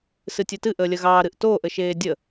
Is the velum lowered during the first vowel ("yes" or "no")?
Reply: no